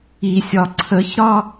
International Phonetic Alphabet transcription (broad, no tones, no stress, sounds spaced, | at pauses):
i sʲ ɒ ǀʰ ə ç ɾ ɒ